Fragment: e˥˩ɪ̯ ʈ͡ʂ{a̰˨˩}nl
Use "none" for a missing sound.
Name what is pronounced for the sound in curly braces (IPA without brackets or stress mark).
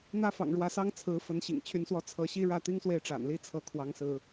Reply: a̰˨˩